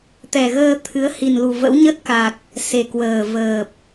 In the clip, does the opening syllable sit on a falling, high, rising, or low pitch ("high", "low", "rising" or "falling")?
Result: low